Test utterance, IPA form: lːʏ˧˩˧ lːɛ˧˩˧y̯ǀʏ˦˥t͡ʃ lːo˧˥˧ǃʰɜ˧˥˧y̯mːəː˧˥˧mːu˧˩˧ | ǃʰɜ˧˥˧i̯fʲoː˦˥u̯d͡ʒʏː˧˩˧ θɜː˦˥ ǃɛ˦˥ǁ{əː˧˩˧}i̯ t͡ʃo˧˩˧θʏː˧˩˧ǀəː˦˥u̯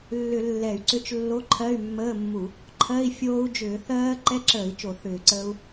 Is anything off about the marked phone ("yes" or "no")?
no